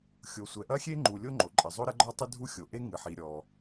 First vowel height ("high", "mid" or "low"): mid